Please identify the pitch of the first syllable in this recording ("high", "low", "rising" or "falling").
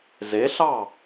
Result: rising